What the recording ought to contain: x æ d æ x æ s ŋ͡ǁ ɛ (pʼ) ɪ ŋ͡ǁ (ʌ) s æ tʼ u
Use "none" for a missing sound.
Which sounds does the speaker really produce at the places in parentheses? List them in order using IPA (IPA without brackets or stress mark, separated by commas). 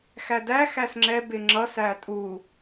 b, ʌ